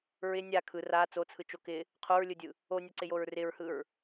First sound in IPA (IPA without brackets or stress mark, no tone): ɹ